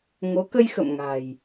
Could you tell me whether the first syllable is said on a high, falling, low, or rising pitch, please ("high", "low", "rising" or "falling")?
rising